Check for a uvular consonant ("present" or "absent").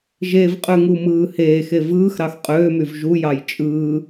present